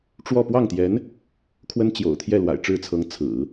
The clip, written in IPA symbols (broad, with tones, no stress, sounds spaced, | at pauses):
ʈ͡ʂ w ɔ˥˧ p w ɑ˥˩ ŋ t̪ j ɛ˧˥ n | kʰ w ə˥ n t͡ɕ j o̰˨˩ ʊ̯ t̪ʰ j ɛ˥˩ l w a̰˨˩ ɪ̯ ʈ͡ʂ ɻ̩˥˩ t͡sʰ ɤ˧˥ ŋ t͡sʰ ɹ̩˨˩˦